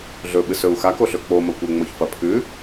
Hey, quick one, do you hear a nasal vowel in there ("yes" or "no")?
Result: no